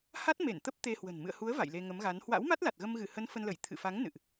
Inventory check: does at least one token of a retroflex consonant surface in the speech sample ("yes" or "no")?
no